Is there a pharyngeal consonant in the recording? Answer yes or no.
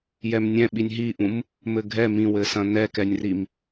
no